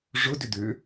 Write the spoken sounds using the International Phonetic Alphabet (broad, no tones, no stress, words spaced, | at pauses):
ʐʊ dʏd̪ʏ